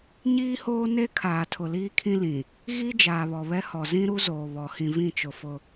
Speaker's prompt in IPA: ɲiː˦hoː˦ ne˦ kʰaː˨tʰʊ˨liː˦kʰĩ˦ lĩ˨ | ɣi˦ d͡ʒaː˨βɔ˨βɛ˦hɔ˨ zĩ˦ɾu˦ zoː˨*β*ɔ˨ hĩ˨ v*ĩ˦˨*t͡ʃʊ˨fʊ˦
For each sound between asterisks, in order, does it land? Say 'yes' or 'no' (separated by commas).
yes, yes